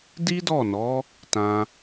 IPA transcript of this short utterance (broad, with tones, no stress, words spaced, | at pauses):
di˦dɔ˦˨nɔ˨˦ | tã˧